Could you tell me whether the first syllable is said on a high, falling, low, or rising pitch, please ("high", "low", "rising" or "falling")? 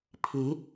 rising